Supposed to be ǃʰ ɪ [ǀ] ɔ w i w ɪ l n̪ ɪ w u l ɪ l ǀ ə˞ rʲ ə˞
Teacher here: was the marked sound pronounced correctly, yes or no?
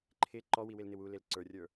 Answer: no